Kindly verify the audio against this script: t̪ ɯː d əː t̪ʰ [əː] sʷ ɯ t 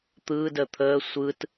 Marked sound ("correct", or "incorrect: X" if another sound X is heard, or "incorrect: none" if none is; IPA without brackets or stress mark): correct